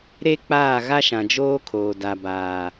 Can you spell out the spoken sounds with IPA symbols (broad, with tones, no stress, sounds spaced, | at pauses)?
ɾ e˦ k͡p aː˦˨ ɣ a˦ ʃ ã˨ d͡ʒ oː˦ kʰ oː˨ d a˨ b aː˨